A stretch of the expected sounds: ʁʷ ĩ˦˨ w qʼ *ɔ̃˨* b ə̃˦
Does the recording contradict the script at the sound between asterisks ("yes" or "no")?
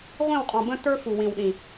no